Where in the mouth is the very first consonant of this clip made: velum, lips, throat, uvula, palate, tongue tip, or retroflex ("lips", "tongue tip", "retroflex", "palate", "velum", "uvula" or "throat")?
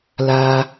tongue tip